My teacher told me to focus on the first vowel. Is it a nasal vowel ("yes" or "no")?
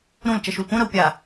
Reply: yes